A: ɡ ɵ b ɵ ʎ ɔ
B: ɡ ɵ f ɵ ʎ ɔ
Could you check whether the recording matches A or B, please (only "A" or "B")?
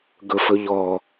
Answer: B